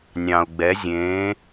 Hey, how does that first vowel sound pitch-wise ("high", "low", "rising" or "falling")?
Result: low